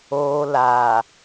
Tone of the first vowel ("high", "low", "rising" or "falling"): low